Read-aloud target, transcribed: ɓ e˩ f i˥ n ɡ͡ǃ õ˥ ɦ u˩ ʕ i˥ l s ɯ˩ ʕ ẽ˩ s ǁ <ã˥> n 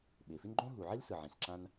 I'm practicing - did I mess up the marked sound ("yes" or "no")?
no